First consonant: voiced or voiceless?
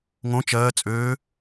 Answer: voiced